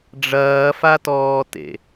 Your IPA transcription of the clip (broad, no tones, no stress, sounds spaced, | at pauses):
ɖ͡ʐ ɐː f a t ɔː t ḛ